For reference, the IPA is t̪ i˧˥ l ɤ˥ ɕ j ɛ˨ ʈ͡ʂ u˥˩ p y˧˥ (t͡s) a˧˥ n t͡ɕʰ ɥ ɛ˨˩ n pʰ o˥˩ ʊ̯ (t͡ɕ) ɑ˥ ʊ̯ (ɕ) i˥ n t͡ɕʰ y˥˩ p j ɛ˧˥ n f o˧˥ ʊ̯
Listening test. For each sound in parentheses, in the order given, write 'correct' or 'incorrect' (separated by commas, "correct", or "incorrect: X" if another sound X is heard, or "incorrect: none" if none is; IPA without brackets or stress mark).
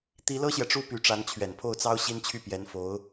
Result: incorrect: ʈ͡ʂ, incorrect: t͡s, correct